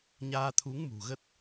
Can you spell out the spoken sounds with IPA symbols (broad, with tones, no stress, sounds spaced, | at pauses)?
ɲ aː˧ t̪ʰ u˨˦ ŋ m ṳ˨˩ ɣ ə˦˥ t̚